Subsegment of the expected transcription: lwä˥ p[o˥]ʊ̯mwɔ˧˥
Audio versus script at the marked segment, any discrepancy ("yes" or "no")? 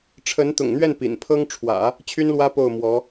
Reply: yes